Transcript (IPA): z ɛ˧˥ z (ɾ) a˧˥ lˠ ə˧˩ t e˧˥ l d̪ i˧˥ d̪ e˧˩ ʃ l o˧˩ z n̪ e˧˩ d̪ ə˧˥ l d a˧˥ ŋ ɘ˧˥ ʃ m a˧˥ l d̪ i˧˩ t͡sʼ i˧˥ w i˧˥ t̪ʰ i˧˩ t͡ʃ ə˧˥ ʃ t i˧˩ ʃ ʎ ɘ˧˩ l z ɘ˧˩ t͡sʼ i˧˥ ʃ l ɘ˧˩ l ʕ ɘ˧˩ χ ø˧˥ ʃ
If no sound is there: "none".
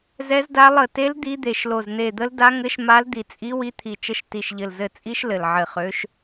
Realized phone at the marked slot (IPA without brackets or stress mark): d